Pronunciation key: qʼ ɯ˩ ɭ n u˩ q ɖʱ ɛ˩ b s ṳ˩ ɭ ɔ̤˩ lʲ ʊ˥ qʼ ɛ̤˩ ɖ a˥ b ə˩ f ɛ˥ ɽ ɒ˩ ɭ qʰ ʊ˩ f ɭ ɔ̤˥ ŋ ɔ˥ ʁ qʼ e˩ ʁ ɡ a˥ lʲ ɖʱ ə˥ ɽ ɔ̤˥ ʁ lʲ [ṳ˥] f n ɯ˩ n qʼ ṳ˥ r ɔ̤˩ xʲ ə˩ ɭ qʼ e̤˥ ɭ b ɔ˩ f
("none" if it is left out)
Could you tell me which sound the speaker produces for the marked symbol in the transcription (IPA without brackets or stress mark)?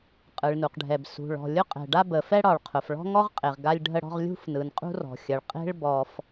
ṳ˥